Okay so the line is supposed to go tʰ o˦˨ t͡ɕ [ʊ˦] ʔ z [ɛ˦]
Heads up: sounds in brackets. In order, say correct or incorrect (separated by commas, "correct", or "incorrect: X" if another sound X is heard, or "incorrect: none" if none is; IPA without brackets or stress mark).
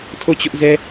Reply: correct, correct